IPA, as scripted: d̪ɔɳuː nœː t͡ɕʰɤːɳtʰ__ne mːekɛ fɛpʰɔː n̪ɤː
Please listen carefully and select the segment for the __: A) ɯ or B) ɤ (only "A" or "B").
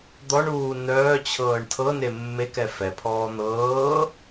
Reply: B